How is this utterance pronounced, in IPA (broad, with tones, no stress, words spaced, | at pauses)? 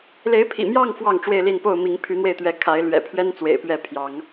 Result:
le˨˦ɪ̯pʰḭ˨˩mjɑ˥˨ŋ fwɑ˥˨ŋʈ͡ʂwe˥˨ɪ̯li˥˨npo˥˨ʊ̯ mi˨˦ŋpʰy˨˦n̪we˧ɪ̯t̪ɥɛ˨˦ kʰa˨˦ɪ̯lɥɛ̰˨˩pʰɥɛ˦n t͡swḛ˨˩ɪ̯pɥɛ˥˨ pʰjɑ˨˦ŋ